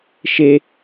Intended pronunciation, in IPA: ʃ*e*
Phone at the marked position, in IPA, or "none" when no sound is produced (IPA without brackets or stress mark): e